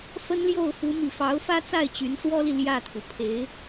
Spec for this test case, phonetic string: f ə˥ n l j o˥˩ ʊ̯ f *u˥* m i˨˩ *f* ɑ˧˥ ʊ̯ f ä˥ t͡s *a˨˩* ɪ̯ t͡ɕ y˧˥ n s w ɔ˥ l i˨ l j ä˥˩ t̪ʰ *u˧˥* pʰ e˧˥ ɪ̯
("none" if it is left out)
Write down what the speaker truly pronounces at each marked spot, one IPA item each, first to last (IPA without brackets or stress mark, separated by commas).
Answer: u˧˥, f, a˥˩, u˩